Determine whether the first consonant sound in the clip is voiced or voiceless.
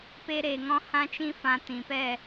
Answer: voiceless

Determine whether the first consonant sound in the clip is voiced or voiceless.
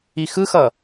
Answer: voiceless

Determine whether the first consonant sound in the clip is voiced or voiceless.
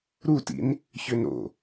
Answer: voiced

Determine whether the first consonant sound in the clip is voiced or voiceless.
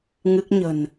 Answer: voiced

